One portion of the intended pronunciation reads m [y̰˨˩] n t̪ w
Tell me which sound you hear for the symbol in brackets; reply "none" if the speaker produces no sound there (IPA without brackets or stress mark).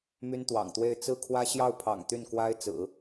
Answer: y˥